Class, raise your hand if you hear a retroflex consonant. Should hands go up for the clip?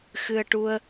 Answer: yes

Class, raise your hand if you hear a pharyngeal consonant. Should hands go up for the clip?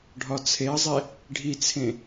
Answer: no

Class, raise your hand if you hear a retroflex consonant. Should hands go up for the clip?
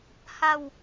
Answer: no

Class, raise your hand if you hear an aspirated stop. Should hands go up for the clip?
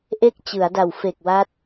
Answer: no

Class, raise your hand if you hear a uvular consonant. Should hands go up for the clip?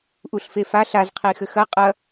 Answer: yes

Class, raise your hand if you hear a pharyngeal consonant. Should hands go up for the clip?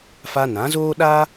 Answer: no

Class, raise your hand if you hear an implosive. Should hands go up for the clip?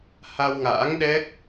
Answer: yes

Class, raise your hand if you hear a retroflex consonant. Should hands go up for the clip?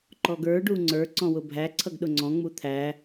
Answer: yes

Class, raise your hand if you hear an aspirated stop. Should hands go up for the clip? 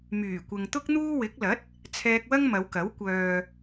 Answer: yes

